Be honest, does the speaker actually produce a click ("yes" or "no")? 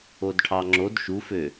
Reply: yes